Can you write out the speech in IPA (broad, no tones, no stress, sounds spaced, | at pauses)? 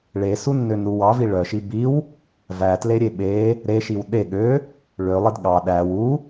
ɭ e s u nː ø n ɾ u w ɑ v i ɭ œ ʃ i b i w | v æ t l e ɾʲ e ɓ e | ɾ e ʃ i w ɗ e ɠ ø | ɭ ø lˠ i d ɠ ɑ ɗ æ w u